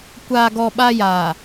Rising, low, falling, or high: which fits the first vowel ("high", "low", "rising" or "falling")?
low